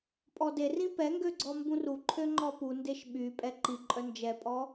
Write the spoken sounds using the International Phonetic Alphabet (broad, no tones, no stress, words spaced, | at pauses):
pʼɔderĩ pɛŋɡø ɡ͡ǀɔmbũruǃʰø ŋ͡ǃɔpundeʃ ɓypʼɛ ǃi ǃʼœnd͡ʒɛpʼɔ